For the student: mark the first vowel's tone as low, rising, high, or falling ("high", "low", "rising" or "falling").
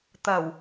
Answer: low